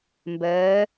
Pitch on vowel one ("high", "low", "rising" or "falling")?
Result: rising